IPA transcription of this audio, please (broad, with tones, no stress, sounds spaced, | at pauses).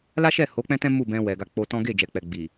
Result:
l a˦ ʃ ɛ˦˨ h o˨˦ k͡p ɛ̃˦ t ɛ̃˦ m u˦˨ b ɛ̃˧ w ɛ˨ ɡ a˧ k͡p o˧ t ɔ̃˦ ɡ e˦˨ d͡ʒ ɛ˨ k͡p ɛ˨ ɡ͡b i˨